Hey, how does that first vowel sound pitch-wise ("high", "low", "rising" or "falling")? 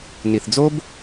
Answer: low